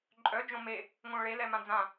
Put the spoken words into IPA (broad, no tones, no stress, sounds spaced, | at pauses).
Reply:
ǃʼ œ d͡ʒ õ m e | ŋ õ ɭ e l ɛ m ã d͡z ã